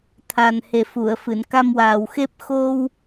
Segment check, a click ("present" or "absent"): absent